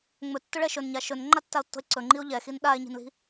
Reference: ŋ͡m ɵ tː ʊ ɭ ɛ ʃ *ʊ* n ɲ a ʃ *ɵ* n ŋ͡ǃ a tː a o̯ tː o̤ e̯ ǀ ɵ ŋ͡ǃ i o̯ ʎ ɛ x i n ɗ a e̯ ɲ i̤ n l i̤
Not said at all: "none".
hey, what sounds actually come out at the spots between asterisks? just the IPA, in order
ɵ, ɵ

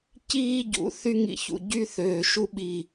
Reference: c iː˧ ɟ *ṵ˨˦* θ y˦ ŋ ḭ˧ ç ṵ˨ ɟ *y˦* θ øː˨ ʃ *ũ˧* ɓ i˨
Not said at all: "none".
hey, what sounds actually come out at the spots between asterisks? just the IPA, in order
ṵ˨˦, y˦, u˧

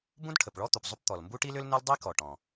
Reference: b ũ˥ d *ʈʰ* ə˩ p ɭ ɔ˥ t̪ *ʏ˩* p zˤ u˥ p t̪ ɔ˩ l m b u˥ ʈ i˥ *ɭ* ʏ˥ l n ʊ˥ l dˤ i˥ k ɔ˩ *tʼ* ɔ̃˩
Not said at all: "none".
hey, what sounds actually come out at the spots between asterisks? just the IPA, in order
ʈʰ, u˩, l, ʈ

